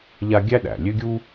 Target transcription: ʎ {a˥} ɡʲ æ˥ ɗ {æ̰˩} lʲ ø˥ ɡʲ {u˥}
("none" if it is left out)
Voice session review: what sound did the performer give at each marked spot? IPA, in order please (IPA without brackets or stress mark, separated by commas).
a˥, æ̰˩, u˥